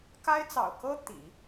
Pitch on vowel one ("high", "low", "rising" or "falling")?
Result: high